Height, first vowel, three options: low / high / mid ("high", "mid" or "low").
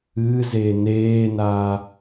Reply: high